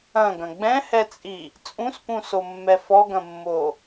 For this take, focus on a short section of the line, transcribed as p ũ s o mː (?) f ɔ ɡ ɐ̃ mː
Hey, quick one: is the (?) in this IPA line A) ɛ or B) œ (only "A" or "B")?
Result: A